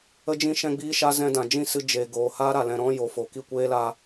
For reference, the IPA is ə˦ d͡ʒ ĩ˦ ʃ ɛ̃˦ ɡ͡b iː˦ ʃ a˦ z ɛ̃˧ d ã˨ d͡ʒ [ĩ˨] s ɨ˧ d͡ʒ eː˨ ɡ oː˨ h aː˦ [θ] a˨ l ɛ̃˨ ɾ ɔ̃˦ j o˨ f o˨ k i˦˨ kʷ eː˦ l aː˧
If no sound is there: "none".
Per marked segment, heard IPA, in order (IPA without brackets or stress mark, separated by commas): ĩ˦˨, ɾ